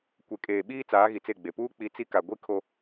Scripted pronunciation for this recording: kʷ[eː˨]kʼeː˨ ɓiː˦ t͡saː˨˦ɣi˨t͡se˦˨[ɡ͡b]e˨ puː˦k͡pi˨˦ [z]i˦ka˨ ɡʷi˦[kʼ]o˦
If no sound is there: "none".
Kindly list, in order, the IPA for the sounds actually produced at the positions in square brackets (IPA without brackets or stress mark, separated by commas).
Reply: e˨, ɡ͡b, t͡s, kʰ